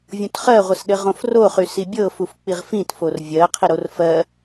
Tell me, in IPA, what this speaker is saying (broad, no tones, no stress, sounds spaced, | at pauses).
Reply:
vʲ õ t χ ɜ ʁʷ ɘ s ɗ ɘ ʁ õ f r o χ y s i bʲ ɤ f u f k͡p i ʁ f ĩ t f o r vʲ ɜ qʰ i ɾ o r f ɜ